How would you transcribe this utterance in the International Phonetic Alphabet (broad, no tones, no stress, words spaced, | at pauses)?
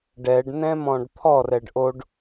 ɖɛɖnɛ̃mɔ̃ɖ t̪ʰɔrɛɖ ʔoɖ